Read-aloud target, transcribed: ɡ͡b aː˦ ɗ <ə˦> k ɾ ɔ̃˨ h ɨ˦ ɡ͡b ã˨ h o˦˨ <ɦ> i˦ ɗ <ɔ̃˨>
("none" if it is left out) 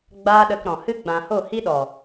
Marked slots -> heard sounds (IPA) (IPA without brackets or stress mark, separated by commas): ə˧, h, ɔ˨